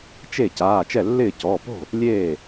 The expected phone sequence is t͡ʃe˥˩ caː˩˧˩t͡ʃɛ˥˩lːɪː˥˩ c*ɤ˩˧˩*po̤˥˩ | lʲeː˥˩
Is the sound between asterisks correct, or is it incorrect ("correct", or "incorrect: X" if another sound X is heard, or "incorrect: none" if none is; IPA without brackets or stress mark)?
incorrect: ɔ˩˧˩